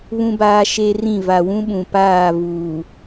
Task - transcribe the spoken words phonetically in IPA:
βũ˦baː˦ʃe˦rĩ˦˨ va˨wũ˦ɓũ˨ paː˦˨vuː˨

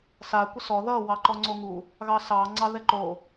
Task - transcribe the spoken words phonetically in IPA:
sa kʷəsɔ ðʌ wɑǃɔŋ͡ǀoŋu | ɣɑsɑ ŋ͡ǀɑðɛǃo

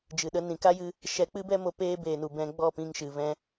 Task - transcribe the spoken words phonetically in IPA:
d͡ʒɨ˨ɗə˧ nĩ˨ka˦jɨ˧ | ʃɛ˧k͡pɨ˦bɛ˦mo˧ peː˦ beː˨nu˨ bɛ̃˧ɡ͡bɔ˦˨pĩ˧ŋʃɨ˨ vɛ̃˧

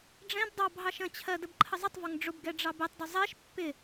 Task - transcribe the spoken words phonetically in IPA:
ɖ͡ʐɛ̃b dˤɑb ɦɑʃə̃t͡ɕʰɜ dəbǃʰəzˤɪtˤvɒŋ ɖ͡ʐʊbɡɛ ɖ͡ʐɑbɛtˤdʊ zˤɛʃ pːɪ

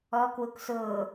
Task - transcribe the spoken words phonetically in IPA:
ɔ kwuksʊː

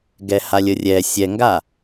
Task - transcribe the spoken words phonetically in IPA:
ɡɛhalʲərʲɛ sʲɛŋɡa

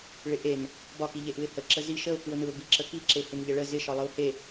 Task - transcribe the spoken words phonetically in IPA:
ɭɪʔen | bɒki ʎeʔɯɪ̯hə ǁəzi ʃəʊ̯kɯʊ̯nɯʊ̯ biǁəki ǁehɪnʎəɭə zɪʃɒ lˠɯʊ̯he

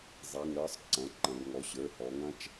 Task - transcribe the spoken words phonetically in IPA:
zˤi˩˧˩ŋɾə˞˦˥sˤ ǀɐ̃˩˧˩ǃɐ̃˩˧ɡ ŋɔ˩˧˩ɕə˞˩˧˩hɔ˩˧ŋɐ̃˦˥t͡ʃ

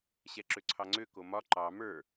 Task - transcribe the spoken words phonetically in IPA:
ɕɛǁøǀʰɑŋ͡ǀø komɒ ǃɑ mə˞

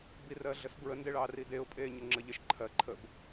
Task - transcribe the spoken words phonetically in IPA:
birɜɮəsbɹə ndeɭɑrideʊ̯ pʼeːɲəŋ͡ǁəʎəʃ ǃʰɜ ǃʰəb

